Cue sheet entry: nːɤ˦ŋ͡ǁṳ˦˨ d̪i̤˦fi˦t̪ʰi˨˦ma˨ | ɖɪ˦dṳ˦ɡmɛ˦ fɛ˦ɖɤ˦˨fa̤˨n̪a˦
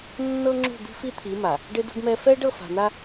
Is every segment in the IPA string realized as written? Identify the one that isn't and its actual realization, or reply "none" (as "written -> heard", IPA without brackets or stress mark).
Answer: none